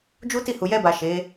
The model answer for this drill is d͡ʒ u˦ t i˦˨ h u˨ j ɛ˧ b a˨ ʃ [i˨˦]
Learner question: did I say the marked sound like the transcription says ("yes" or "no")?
no